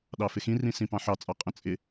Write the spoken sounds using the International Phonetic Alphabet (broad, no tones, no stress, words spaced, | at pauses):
ɗɑfɪxĩrĩ sĩpɑ̃ħɑt͡sʼɑ qʼə̃t͡sʼɪ